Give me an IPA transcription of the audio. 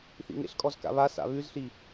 θ ḭ ŋ ḛ ɬ kʼ ɔ z k a̰ β a s a̰ β ʉ z ɬ i

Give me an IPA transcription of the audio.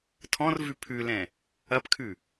tʰ ɔ̃ r v ʉ pʰ ʉ l ɛ̃ | ɐ p kʰ ʉ

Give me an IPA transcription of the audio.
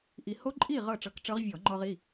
ʔ i˧ h o˦˥ ǃʼ i˥˨ ʁ ɤ˥˨ ʈ͡ʂ ɤ˧ k ʈ͡ʂ ɤ˦˥ ʁ vʲ ɔ˧˩˧ ŋ͡ǃ ɔ˧ ʁ i˩˧˩

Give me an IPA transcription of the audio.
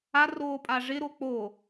a r oː pʼ a ʐ ɪ ɾ o k͡p o

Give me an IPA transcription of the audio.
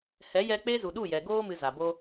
h ɛ˨˦ j ɛ˧ k͡p e˦ z u˨ ɗ u˦˨ j ɛ˨ ɡ oː˦ m ɨ˧ z a˨ b o˦

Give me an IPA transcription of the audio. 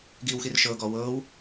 ɡ iː w x i r ʃ ɤː ɡ ɔː w ɤː w

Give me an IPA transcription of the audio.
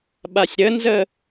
ɓ a sʲ ɾ ə n z ə

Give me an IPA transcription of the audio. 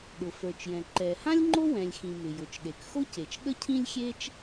ɗ ʊ˩ f ə˞˩ t͡ʃ j ɛ̃˩ ǃ ɛ˩ h ã˥ lʲ ŋ͡ǃ o˥ w ɛ̃˩ lʲ x ĩ˩ m ɪ˩ j ʊ˩ t͡ʃ ɗ e˩ k x o˥ c e˩ t͡ʃ ɠ ə˥ cʰ ĩ˥ lʲ xʲ e˥ t͡ʃ

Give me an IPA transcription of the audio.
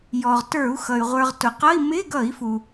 j ɔ˩ ʁ t ə˞˧˩˧ u̯ x ʌ˩ y̯ ʁʷ ə˞˩ ʁ t ʊ˩ q ʌ˧˥˧ i̯ m ɪ˧˥˧ ɡ ʌ˧˩˧ i̯ f u˩

